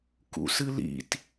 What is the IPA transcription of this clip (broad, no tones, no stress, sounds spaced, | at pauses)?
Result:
k ṵ s ɨ l ḭ t